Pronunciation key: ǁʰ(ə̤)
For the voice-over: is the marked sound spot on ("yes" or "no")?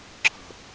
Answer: yes